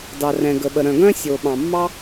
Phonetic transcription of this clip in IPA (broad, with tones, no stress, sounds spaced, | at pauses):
d ɑ˩ r ɛ̃˩ ɡ ə˩ ɓ ə˩ ɾ œ̃˩ ɡ œ̃˥ sʲ o˩ ɓ ɑ̃˩ mː ɑ˥